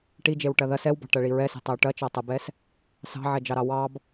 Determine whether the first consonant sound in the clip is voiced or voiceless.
voiceless